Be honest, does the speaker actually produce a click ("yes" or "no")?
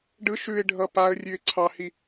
yes